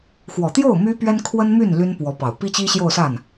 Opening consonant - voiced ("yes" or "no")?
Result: no